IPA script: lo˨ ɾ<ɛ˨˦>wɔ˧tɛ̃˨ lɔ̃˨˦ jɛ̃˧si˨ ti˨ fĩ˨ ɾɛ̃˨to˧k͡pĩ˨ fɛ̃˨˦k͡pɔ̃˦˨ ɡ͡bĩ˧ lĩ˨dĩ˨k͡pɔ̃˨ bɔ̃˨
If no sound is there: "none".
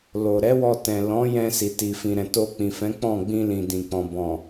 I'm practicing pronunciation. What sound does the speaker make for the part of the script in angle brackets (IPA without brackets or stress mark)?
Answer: ɛ˨˦